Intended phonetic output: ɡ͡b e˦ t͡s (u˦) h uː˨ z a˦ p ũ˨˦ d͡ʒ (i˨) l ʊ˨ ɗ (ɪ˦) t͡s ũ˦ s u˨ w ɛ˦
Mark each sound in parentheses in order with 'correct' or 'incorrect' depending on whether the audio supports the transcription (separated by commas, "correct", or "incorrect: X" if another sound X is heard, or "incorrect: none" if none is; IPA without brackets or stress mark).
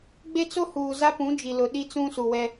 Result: incorrect: o˦, correct, incorrect: i˦